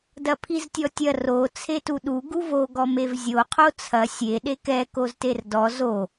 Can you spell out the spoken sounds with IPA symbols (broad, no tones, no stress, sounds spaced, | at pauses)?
d ɐ pʰ i z tʲ ɔ tʲ ɐ r o t͡sʰ e t u ɗ u ɡ u v o ɡ ɔ m e v zʲ o qʰ o t͡sʰ ɐ sʲ e ɗ e k ɛ k o z t e r d ɔ z o